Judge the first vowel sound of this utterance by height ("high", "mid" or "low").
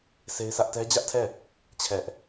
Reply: mid